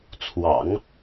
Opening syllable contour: low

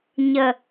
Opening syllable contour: low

